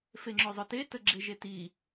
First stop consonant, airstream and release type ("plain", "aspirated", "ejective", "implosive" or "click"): click